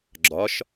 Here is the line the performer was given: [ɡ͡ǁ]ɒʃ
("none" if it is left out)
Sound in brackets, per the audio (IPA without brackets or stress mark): ɡ͡ǁ